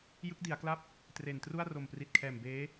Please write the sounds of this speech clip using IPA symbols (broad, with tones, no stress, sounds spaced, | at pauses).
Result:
j ɯ˦˥ k̚ d i˩˦ a̯ k l a˥˩ p̚ | t r e˨˩ n t r u˥˩ a̯ r o˨˩ m p r i˨˩ t̚ kʰ ɛː˨˩ m b eː˦˥